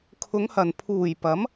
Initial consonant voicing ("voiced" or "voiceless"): voiceless